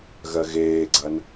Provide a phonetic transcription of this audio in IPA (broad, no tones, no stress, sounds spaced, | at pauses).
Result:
ɣ ɜ ɣ eː ɡ͡ǀ ɐ n